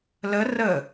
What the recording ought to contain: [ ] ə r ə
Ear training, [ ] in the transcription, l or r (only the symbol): l